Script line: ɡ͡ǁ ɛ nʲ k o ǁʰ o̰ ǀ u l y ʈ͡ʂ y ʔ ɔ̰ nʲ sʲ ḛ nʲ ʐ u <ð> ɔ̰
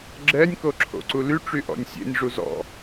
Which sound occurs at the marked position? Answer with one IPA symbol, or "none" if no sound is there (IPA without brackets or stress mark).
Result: z